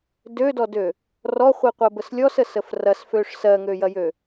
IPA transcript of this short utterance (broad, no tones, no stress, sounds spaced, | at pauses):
d ø d ɔ d ø | r ɔ χʷ i qʷ ɜ b ə s lʲ ɔ s ə s ə f r ɐ s f ø ʂ s ɜ ŋ ø j ɐ j ø